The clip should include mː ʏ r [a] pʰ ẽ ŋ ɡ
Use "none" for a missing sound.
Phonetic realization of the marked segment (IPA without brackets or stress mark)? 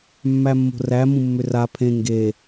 a